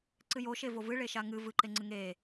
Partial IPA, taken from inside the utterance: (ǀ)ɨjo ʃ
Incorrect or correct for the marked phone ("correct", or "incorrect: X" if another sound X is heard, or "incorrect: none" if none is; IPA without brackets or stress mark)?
correct